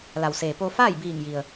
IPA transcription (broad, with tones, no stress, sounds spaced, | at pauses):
l a˩ w s eː˩ p o˧ f aː˥˨ j b iː˧˩ ŋ j i˩ ə̯